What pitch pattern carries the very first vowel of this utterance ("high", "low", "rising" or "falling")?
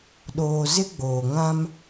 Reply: low